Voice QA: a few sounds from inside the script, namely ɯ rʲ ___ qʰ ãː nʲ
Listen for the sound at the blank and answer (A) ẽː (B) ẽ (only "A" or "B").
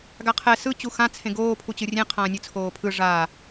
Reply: B